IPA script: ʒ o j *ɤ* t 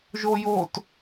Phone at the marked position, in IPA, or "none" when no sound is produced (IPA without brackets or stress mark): o